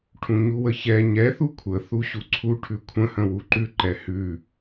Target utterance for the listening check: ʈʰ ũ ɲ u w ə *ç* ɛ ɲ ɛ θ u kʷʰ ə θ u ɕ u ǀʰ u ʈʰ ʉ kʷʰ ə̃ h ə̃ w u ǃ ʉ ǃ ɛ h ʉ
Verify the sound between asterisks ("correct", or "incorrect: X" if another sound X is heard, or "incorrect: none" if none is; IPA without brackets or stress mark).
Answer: correct